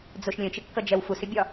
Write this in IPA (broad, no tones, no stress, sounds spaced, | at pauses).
d͡z ʊ ʃ lʲ ə̃ t͡ʃ ɪ kː ʌ d͡ʒ ɛ w f u s ɪ bʲ ɒ